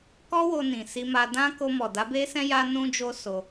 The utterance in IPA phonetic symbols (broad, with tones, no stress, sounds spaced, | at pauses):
k ɔ˦ w o˧ n ĩ˨ s i˧ m a˧ d ã˦ k o˧ m ɔ˨ d a˨˦ b e˦ s ɛ̃˦ j a˦ n ũ˦ d͡ʒ o˦ s o˧